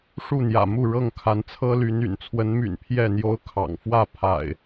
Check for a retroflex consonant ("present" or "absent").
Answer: present